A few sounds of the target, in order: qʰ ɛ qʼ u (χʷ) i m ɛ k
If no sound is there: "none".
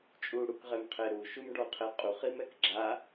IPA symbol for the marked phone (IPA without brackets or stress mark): χ